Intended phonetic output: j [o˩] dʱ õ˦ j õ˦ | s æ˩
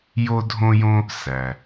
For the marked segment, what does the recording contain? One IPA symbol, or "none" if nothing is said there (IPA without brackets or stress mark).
o˦